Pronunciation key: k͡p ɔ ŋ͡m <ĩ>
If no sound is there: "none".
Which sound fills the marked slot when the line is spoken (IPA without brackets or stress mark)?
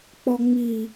i